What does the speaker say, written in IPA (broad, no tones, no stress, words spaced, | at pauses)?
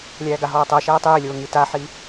lʲæːɡaɦɔːtˤəː ʃæːtˤeːlʲoː ŋitaħi